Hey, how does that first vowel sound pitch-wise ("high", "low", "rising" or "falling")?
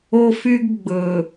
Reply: high